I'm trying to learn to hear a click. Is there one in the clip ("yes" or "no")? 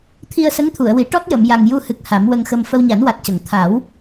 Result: no